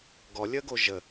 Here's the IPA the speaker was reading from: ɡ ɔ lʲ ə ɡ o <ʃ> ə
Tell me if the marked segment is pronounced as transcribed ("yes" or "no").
no